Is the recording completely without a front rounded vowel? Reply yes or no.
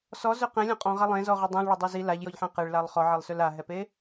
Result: no